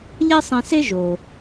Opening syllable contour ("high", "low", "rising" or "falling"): high